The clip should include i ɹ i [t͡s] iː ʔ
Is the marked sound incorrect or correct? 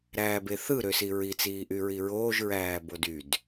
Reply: correct